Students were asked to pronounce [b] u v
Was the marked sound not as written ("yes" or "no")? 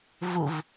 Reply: yes